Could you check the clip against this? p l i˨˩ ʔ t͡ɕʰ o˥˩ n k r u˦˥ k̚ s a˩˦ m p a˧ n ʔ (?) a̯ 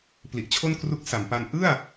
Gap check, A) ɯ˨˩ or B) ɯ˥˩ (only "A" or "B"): B